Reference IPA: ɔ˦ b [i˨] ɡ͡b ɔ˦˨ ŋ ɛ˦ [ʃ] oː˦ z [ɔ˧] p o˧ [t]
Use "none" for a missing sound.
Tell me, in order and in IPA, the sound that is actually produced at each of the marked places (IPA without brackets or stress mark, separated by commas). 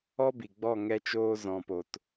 i˨, t͡ʃ, ɔ̃˧, t